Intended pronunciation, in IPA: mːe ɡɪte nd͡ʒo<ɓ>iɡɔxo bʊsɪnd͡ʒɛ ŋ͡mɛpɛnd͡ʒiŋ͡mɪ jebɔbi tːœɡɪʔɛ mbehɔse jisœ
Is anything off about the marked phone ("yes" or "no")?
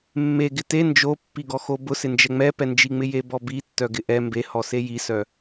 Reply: yes